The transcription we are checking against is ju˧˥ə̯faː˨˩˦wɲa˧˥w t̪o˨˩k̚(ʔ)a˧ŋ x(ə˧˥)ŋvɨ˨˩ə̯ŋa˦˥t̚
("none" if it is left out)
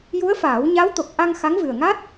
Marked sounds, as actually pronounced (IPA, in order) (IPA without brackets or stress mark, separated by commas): ʔ, a˧˥